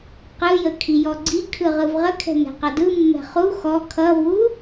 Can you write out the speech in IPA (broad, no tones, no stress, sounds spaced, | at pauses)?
q ɯ j ə kʰ i j ɔ ɡ͡ǀ i kʰ ɯ ʁ ɯ v ʁ ə kʰ ɛ̤ n ɛ̤ q ʌ d ɯ mː ɛ̤ χ u x ɔ kʰ ʌ v u